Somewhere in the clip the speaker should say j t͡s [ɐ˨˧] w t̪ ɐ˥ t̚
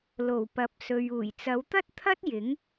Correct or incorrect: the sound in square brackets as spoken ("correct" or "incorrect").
correct